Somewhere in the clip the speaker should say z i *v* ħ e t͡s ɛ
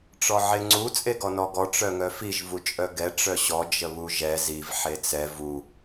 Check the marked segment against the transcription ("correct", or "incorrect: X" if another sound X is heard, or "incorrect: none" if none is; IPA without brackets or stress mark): correct